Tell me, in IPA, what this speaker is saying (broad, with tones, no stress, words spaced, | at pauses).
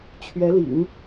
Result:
t͡ɕʰɥɛ˧˥lḭ˨˩˦ŋ